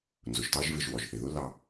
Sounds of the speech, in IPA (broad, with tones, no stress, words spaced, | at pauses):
nzʊ˩ʒtɑ˦ʒvɪ˨ʒ wɔ˩ʒθɪ˩ðʊ˥ lɑ˨